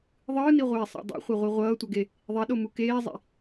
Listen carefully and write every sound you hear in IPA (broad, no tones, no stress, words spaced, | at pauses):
ðˤɯːniʁʷeːsˤa̰ dˤḭχʷeʁʷi ʁʷʌːtʷʌɡe | ðˤiɗomu keːzˤḭ